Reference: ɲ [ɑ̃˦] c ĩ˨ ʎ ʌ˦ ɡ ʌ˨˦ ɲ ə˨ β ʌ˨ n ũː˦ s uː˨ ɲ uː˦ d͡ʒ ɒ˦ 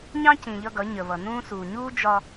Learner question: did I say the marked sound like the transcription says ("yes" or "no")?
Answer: yes